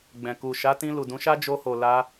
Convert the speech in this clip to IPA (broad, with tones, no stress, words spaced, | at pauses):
ɡ͡bɛ̃˨ ku˨ʃa˨˦tĩ˧ lu˨dũ˨˦ʃa˦ d͡ʒo˧ho˨ la˧